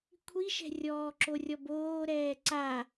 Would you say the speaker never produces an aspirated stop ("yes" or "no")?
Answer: no